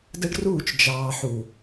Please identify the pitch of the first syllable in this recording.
high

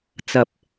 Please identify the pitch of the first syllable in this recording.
low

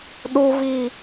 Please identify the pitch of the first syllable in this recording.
high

